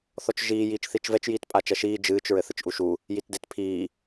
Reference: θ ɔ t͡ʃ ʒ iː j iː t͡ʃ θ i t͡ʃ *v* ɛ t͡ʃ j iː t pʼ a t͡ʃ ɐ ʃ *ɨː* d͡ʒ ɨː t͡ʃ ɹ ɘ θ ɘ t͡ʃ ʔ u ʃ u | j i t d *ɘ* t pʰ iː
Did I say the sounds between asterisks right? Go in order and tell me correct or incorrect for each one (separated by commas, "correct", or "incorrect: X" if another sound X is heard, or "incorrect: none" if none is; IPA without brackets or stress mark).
correct, incorrect: iː, incorrect: e